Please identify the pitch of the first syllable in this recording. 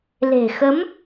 low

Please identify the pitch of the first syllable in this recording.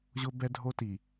high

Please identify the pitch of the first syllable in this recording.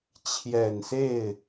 low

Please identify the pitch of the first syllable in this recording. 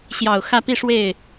low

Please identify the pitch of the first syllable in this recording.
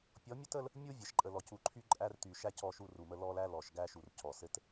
rising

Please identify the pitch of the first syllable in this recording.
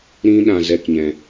high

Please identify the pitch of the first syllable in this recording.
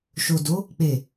low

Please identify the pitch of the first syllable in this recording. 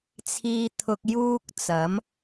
high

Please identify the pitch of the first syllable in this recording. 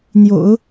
low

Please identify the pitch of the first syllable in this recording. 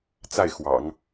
falling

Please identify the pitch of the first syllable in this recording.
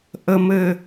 low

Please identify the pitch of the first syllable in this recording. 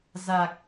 low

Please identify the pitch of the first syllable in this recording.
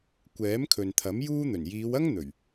rising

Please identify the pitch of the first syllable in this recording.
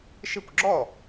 falling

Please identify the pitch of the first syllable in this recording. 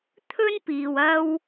high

